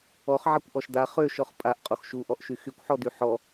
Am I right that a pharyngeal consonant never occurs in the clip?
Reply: no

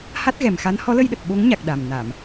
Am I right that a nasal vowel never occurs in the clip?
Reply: yes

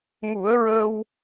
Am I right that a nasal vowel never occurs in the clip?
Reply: yes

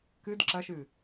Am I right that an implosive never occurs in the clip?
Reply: yes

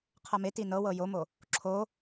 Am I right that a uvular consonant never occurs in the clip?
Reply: no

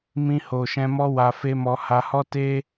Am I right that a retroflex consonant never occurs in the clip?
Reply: yes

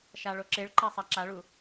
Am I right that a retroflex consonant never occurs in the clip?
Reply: no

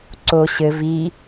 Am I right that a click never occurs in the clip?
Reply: no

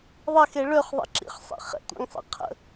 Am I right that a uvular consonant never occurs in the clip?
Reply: no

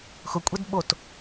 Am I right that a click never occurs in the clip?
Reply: yes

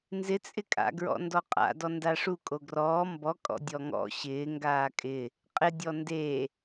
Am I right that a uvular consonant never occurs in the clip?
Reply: no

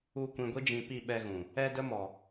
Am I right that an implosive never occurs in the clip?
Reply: no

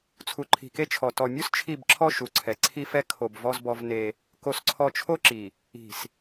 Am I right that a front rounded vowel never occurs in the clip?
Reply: yes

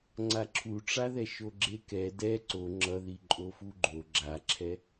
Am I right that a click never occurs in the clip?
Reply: no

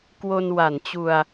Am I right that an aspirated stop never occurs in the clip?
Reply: yes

